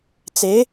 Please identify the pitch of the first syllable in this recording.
rising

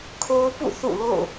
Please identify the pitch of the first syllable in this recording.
high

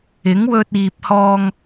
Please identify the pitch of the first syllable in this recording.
rising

